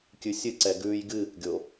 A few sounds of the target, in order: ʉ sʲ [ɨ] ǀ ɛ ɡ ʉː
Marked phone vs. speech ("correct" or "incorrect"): correct